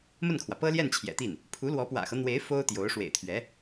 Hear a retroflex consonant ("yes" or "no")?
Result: yes